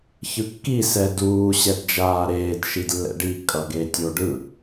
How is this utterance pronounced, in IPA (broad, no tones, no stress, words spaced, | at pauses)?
çɯkːi sɛduː ɕɛdd͡ʒaːɾeːd ʃidlːɛ̰ɖi kʼʌɡetʲoɖɯ